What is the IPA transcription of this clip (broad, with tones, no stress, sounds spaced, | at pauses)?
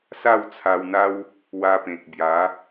s a˥˧ w t͡sʰ a˧ w n̪ a˦ w | w a˧ p ẽ˨ k̚ b j a˨˦